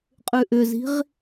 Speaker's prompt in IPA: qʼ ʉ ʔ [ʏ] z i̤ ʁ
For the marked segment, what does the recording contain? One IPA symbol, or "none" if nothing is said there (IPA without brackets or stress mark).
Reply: ʏ